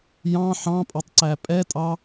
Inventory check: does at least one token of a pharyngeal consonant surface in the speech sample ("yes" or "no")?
yes